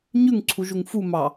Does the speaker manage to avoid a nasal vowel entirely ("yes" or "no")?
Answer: yes